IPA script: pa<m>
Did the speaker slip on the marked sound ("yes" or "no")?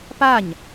yes